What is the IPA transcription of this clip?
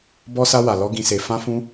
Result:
b ɔ˧ s a˧ w a˨ l ɔ˧ ɡ ĩ˨ s e˨ f ã˧ f ũ˧

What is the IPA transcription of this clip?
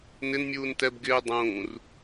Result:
n ɪ n mʲ uː n t ɛ b ɡ ɪː dˤ ũː r

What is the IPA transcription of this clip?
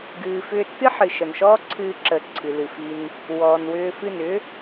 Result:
ɡ ɨː˨ f ʏː˦ tː ɨ˦ ħ ɨ˨ ʃ ə˨ n ʃ ɔː˦ ǀʰ ɨː˧ ǁ ə˨ ǀʰ ɨ˨ l ɨ˨ f i˧ n | w ɔː˨ n w ʏː˧ f ɨ˦˨ n ʏː˦

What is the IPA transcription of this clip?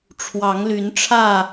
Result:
ʈ͡ʂʰ w ɑ˨˦ ŋ l y˨˦ n ʈ͡ʂʰ ä˥˨

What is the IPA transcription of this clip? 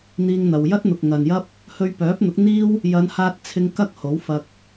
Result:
n̪ iː˥ ŋ n̪ ɐ˧ w j ɐ˥ t̚ n̪ ʊ˨ k̚ ŋ ɐ˨ n j ɐ˥ p̚ | h ɵ˧ ɥ p œː˨˥ p̚ n̪ ʊ˨˥ k̚ n̪ iː˥ w | j ɐ˨˧ n h aː˧ t̚ t͡sʰ ɪ˧ ŋ k ɐ˥ k̚ h o˨˥ w f ɐ˧ k̚

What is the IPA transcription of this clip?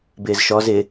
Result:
b ɪː z ʃ ɔ z ɪ

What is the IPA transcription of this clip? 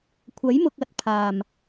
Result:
kʷʰ ɐ˨˥ j m ʊ˨ k̚ ɐ˨˥ t̚ pʰ aː˨˩ m

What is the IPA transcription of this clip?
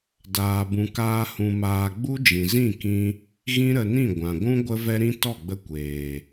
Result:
d aː˧ b ũ˧ k aː˦ h ũ˧ m aː˧ ɡ͡b u˦ d͡ʒ ĩ˨ z ĩ˦˨ k ĩ˧ | ɣ ĩ˦ ɾ ə˧ n ĩ˦˨ ɡʷ ã˨ ɡʷ ũ˦ ɡʷ ə˦ v ɛ˦ ɾ ĩ˦ t ɔ˦˨ ɡ͡b ə˧ kʷ eː˨

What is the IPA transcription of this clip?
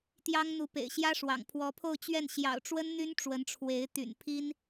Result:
t̪ j ɑ˥ ŋ n̪ u˧˥ p ḛ˨˩ ɪ̯ ɕ j ä˥ ʂ w ɑ̰˨˩ ŋ pʰ w ɔ˧˥ pʰ o˥˧ ʊ̯ t͡ɕ ɥ ɛ˥˩ n ɕ j ɑ̰˨˩ ʊ̯ ʈ͡ʂ w ə˥ n n̪ y˥ n ʈ͡ʂ w ə˧˥ n ʈ͡ʂʰ w e˧˥ ɪ̯ t̪ y̰˨˩ n pʰ i˥ n

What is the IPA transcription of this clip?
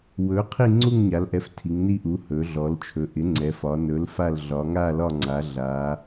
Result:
w ɵ˩˥ qʰ i˦˨ ŋ͡ǀ u˦˨ ŋ ɲ a˩˧ l ʔ ɛ˩˥ f tʰ i˩˧ ŋ n i˦˨ ʔ u˩˥ h ɵ˩˧ ɮ ɔ˩˧ l t͡ʃʰ ɵ˩˧ ʔ ɪ˩˥ ŋ͡ǀ ɛ˩˧ f ɒ˩˧ n ɵ˩˥ l f a˦˨ l ɮ ɒ˩˧ ŋ a˦˨ l ɒ˦˨ ŋ͡ǀ a˩˧ ɮ a˩˧

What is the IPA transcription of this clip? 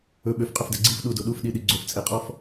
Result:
ɵ ɓ ø f qʼ ɵ f d ɛ ɡ͡ǀ i f ɗ u d o ɗ u f ɗ i ɗ i ɡ͡ǀ o f t͡sʼ e qʼ ɔ f

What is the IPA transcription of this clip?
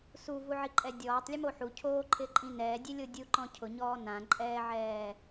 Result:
s u v u ʕ i ǃʼ ɛ dʲ ɔː tˤ lʲ ʊ m o ħ u cʰ oː ǃʰ ɪ ǃʼ ĩ n ɛː dʲ e lʲ o dʲ u ǃ ɔ̃ cʰ ʊ ɲ ɔː n ã ǃʼ ɛː ʕ ɛː

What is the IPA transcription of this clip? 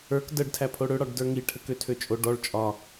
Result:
ə˞ k d ə ɖ tʰ æ pʰ o ɽ ø ɽ ɒ ɖ d ə˞ ŋ i ʈʰ ə k ø tʰ ø t͡ʃʼ o ɖ ɔ ɭ t͡ʃʼ ɒ

